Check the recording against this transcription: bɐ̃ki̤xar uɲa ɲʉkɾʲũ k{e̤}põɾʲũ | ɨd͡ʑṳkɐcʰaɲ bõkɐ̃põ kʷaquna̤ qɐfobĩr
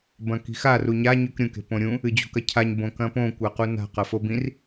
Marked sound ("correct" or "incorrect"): correct